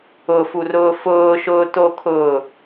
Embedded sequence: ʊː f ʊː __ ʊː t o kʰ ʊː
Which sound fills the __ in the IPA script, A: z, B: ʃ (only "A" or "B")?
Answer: B